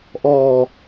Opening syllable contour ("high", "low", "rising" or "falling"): low